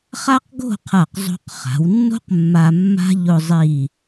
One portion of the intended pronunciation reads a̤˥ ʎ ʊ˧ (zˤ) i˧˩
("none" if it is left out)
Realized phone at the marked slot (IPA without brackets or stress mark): zˤ